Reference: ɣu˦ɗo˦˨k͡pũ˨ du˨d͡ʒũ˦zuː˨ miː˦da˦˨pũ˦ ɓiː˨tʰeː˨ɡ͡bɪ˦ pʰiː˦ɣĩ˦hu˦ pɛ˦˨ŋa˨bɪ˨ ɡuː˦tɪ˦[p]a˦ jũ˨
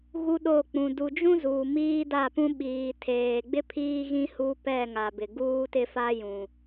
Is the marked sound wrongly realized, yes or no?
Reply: yes